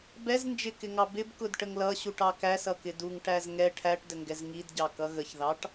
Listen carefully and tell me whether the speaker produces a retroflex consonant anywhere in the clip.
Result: yes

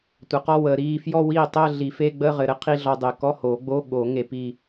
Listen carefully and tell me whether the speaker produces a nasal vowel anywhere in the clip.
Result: no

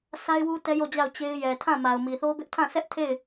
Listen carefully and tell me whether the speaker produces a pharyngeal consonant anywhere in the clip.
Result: no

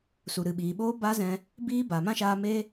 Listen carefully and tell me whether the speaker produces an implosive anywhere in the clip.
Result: yes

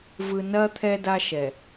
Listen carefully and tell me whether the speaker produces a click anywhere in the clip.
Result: no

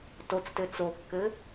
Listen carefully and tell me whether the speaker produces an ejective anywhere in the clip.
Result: no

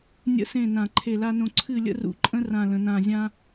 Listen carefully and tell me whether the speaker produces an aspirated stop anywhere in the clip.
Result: yes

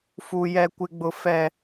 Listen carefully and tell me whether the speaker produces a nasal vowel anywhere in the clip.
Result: no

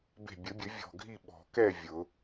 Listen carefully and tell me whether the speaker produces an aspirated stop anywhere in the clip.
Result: no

